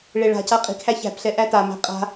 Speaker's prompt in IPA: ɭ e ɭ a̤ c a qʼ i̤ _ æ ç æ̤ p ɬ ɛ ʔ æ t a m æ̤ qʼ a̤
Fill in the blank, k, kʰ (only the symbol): kʰ